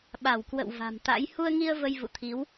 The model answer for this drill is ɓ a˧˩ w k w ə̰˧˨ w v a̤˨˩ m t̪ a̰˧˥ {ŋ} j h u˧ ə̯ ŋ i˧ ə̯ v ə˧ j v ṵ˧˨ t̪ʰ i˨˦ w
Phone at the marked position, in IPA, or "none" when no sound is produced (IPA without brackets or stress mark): none